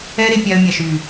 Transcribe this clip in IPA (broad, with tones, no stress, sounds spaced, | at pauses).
ɛː˦ ɾ e˧ pʲ a˧ ə̯ mʲ a˨ ʃ yː˨